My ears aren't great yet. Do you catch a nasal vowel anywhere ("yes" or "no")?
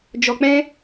yes